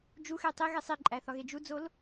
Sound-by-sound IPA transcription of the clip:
d͡ʒuxe tˤiɣe sˤiǃʼæθɒɣe d͡ʒud͡zol

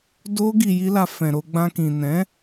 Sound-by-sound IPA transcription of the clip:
do˦ ɡi˧ji˦la˧ fɛ̃˨ɾo˧ɡ͡bã˧kĩ˨ nɛ̃˨˦

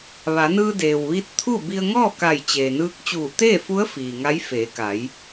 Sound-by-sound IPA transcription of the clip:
ʋa˩˧nɯː˧deː˩wʋi˧˥t̚ t̪ʰu˥˨ bi˧ə̯ŋɔː˥˨ka˧˩j t͡ɕeː˩nɯː˧˥k̚ t͡ɕuː˧˩t̪eː˥˨fu˧˥ə̯ fiː˩ ŋa˧˥j feː˩˧ka˩˧j

